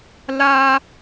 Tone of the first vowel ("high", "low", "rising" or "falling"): high